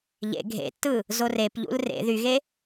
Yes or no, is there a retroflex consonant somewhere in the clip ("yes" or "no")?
no